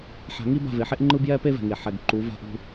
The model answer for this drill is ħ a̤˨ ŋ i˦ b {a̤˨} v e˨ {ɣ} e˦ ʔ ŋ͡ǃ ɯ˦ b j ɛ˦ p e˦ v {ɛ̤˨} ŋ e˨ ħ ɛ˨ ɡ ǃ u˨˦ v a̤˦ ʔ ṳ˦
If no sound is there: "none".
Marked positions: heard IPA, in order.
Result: a̤˦˨, ħ, ɛ̤˨

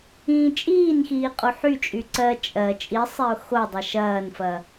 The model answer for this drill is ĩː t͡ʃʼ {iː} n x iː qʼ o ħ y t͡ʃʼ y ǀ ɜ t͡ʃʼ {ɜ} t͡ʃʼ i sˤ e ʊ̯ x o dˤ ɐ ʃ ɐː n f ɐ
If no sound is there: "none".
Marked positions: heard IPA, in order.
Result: iː, ɜ

